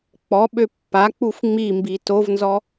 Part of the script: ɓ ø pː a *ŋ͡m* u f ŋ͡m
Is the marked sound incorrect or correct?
incorrect